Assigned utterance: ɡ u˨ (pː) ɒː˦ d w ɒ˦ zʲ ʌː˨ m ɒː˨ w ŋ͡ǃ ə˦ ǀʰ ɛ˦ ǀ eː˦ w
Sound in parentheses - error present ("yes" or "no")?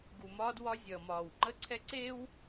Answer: yes